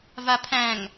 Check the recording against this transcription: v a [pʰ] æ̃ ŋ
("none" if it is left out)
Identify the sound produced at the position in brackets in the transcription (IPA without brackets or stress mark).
pʰ